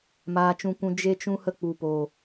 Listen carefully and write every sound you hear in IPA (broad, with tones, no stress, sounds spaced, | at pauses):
m aː˧ t͡ʃ ũ˧ kʷ ũ˧ d͡ʒ e˦ t͡ʃ ũ˦ h ə˧ k͡p u˨ p o˨